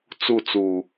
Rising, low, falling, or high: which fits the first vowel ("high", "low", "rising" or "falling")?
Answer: falling